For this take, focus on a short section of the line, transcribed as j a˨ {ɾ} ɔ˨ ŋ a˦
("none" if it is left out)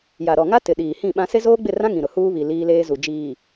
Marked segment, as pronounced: ɾ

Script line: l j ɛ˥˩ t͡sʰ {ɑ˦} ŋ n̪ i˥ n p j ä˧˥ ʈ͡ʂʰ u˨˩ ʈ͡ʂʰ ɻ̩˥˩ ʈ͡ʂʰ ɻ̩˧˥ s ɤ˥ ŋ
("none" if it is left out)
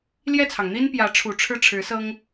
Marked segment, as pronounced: ɑ˩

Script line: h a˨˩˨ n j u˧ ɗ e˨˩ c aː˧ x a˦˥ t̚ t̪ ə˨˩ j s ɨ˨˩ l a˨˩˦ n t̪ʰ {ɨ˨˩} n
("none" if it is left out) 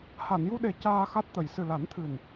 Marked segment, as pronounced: ɨ˨˩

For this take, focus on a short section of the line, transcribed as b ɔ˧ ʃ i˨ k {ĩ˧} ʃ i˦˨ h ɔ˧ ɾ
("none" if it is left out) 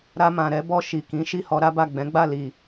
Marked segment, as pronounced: ĩ˨˦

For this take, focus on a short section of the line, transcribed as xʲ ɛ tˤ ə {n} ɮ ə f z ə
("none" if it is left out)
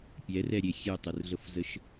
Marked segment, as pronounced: r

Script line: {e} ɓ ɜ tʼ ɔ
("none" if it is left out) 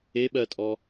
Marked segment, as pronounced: e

